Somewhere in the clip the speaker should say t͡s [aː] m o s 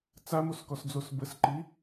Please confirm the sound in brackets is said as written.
no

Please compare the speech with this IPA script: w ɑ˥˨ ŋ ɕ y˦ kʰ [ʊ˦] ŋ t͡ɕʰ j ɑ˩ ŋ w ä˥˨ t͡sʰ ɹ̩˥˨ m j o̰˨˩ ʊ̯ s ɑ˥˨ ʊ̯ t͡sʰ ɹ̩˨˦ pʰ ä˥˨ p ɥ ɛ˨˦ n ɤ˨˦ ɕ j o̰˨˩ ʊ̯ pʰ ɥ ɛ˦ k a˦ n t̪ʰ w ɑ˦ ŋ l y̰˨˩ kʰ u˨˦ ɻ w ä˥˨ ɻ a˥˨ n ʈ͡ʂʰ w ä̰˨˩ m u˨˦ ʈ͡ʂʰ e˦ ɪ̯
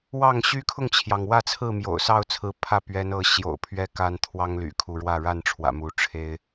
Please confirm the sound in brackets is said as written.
no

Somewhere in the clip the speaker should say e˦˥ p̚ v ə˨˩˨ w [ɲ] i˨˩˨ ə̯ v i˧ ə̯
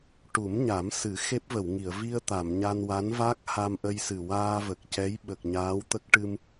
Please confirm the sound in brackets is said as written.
no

